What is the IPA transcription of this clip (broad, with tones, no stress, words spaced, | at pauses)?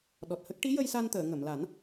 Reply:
ɗɔ˨˩t̚hə˦˥k̚ ʈi˧˥jə˧jsa˧nt̪əː˨˩˨ ŋə˨˩˨mla˨˩˦n